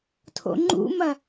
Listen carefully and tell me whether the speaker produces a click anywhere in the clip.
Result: yes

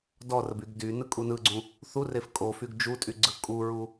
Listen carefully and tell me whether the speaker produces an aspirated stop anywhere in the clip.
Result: no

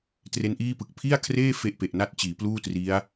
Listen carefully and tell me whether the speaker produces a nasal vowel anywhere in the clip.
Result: no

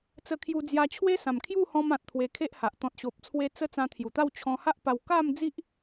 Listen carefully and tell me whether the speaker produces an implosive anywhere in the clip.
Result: no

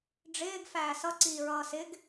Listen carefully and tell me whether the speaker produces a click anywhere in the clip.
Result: yes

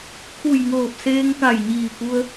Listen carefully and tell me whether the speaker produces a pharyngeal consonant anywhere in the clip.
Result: no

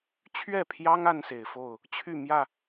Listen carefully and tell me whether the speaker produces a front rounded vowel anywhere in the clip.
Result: yes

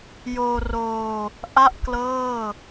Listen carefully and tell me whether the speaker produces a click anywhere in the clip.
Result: no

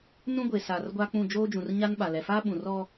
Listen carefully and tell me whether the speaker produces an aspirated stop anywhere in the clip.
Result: no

